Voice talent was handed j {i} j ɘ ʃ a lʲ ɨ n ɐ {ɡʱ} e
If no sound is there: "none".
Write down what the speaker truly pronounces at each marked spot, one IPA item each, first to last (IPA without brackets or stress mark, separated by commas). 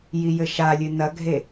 i, ɡʱ